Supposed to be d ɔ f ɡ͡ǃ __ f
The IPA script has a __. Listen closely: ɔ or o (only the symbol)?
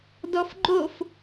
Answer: o